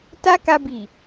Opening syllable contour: high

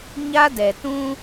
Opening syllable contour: high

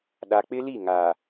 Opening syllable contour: low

